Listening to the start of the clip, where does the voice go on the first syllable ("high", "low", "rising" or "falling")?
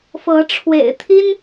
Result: rising